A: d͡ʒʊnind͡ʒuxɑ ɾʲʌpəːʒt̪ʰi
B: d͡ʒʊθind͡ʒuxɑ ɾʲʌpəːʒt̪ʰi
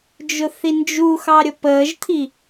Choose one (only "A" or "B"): B